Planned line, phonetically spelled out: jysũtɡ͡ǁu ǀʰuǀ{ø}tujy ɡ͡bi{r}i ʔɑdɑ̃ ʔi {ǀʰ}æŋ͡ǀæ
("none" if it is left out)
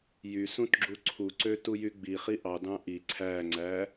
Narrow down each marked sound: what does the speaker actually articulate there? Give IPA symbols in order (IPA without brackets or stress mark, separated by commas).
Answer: ø, χ, ǀʰ